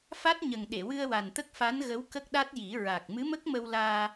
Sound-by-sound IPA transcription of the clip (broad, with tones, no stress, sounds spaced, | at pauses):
f a˦˥ t̚ ɲ ə˨˩ ŋ ɗ e˨˩˨ w ɨ˧ ə̯ w a˨˩ n t̪ ə˦˥ k̚ f a˧˥ n ɣ ə˧˥ w k ə˦˥ k̚ ɗ a˦˥ t̚ j i˨˩˦ ɹ a˨˩ k̚ m ɨ˧˥ m ə˦˥ k̚ m ə˧ w l aː˧